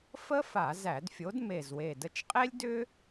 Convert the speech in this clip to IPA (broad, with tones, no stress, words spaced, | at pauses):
fə˥ fa˧˩˧zæ˧˩˧dfʲo˨˥d me˨˩zwe˨˩də˧t͡ʃqʼe˥lʲ dʏ˥